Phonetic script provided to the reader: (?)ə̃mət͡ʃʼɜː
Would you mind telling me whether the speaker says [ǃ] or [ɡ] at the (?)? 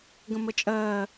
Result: ɡ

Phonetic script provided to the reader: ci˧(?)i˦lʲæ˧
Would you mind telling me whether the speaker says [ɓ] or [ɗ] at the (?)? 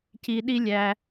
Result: ɗ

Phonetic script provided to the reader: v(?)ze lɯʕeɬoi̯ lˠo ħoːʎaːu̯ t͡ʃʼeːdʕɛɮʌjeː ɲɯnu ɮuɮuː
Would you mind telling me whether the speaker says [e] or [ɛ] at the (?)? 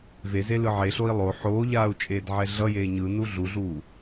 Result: e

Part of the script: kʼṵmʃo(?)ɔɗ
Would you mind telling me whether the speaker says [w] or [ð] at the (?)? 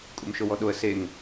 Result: w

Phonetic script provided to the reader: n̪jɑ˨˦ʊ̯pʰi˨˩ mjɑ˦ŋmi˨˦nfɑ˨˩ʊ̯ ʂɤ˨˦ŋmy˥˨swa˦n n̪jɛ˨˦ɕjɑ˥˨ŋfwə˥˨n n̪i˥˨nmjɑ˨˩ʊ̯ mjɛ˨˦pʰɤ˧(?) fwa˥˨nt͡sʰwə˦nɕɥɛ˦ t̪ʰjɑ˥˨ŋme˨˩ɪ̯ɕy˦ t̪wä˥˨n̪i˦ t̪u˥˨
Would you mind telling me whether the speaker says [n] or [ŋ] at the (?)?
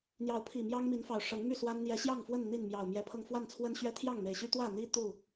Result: ŋ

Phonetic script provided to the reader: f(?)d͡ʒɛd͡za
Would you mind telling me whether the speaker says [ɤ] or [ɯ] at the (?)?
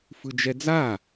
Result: ɯ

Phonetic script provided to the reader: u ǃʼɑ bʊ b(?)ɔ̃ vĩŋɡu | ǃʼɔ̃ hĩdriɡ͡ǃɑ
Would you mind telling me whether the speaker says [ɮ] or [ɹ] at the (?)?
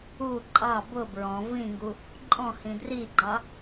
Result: ɹ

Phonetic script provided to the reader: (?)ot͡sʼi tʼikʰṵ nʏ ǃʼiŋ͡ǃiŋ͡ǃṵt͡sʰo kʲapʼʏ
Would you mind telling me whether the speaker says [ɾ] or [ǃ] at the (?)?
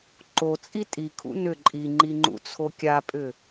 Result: ǃ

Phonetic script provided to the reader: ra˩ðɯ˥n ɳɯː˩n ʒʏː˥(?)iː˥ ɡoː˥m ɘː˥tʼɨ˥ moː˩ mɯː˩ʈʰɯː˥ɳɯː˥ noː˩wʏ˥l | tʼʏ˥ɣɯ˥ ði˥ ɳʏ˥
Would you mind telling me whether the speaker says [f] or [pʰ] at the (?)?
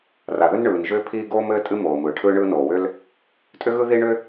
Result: pʰ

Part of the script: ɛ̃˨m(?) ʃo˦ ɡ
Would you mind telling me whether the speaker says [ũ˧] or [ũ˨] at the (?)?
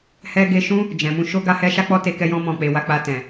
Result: ũ˧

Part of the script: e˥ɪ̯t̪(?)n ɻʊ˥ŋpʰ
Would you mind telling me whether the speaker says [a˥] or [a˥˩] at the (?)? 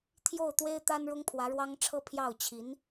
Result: a˥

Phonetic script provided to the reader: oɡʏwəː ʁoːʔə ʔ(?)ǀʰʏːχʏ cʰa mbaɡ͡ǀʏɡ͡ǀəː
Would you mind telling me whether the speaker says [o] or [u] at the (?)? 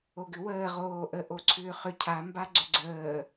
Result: o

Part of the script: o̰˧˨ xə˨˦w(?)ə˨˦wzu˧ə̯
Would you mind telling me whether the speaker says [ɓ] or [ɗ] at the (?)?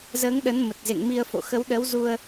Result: ɗ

